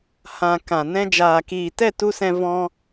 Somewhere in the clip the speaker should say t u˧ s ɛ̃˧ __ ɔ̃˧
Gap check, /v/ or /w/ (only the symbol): v